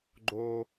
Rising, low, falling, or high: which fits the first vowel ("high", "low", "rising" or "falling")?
high